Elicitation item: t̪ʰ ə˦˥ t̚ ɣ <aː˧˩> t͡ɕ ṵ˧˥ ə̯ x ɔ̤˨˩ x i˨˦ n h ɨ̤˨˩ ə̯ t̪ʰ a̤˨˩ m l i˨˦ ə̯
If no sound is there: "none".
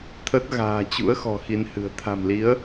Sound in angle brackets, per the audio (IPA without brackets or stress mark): a̤ː˨˩